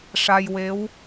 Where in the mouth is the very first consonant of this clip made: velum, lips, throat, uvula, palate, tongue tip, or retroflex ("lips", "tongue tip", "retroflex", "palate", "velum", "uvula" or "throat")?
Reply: retroflex